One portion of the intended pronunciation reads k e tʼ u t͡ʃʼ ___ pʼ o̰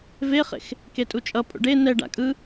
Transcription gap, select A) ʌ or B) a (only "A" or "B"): A